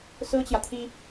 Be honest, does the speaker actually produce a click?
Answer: no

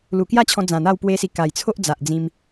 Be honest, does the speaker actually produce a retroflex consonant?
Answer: no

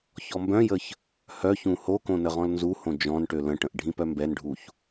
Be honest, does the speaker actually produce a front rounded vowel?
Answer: yes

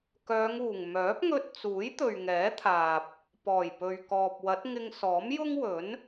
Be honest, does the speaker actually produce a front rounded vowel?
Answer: yes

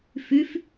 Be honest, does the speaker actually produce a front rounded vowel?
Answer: no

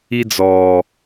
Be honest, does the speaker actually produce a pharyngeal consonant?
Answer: no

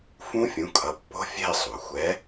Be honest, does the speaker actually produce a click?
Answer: no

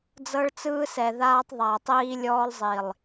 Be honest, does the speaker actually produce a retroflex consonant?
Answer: yes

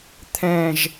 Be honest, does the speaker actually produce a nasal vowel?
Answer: yes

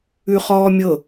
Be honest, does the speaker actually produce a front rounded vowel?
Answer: no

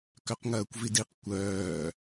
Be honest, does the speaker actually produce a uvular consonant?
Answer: yes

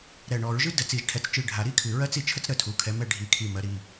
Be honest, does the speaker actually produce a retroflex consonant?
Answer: yes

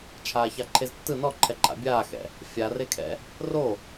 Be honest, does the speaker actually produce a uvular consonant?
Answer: no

